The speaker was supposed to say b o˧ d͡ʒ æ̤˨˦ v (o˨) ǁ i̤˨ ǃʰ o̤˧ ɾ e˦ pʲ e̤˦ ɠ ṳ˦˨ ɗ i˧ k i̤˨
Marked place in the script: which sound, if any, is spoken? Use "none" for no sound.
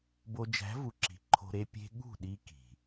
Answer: u˨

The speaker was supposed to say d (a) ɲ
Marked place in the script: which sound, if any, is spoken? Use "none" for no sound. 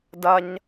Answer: ɐ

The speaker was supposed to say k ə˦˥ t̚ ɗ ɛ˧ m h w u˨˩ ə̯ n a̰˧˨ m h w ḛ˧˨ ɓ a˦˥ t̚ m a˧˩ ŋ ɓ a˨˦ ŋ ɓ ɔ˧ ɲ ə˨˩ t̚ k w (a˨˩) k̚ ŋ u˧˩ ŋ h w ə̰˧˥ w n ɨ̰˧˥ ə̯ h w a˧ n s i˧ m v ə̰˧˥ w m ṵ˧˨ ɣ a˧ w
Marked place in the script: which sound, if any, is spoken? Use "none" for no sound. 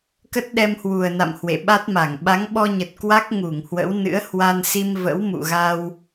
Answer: a˦˥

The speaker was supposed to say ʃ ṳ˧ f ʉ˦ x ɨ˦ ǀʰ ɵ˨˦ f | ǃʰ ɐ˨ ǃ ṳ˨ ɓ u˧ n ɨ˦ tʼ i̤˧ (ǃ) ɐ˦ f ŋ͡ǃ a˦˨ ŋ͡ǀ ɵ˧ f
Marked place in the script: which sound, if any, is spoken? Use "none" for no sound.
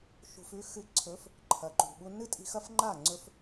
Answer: x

